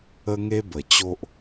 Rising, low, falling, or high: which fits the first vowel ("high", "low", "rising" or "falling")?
high